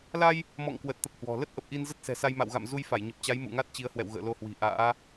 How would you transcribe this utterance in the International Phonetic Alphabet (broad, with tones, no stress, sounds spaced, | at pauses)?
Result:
l a˧ j | m ɔ̰˧˨ ŋ k w ə˨˩ t̚ t̪ ə˨˩ p̚ h w ɔ̤˨˩ l ə˦˥ t̚ ʔ ə˨˩ p̚ ʔ i˧ n z ə˦˥ t̚ s ɛ̤˨˩ s a˧ j m a̰˧˨ w ɣ a̰˧˨ m z u˧ j f a˧˩ j ɲ ə˨˩ p̚ t͡ɕ a˨˦ j m ṵ˧˨ ŋ a˦˥ t̚ t͡ɕ i˨˦ ə̯ h w ɛ̰˧˨ w ɣ ə̰ː˧˨ l o˧ h w i̤˨˩ ʔ a̰ː˧˥